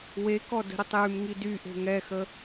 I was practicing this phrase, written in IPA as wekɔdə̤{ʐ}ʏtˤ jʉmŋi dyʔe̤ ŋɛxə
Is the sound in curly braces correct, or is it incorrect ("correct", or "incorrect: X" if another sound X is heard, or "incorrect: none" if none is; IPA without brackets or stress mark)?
incorrect: ɾ